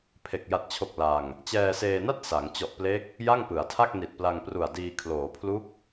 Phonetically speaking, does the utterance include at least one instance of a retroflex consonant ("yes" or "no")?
no